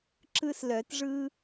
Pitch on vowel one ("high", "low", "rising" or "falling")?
high